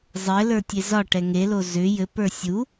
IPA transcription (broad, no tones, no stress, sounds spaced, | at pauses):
zˤ ɘ l ə˞ tʲ e z ɒ ʈ ɛ ŋ e l o z ʏ j ɘ p ə˞ sʲ u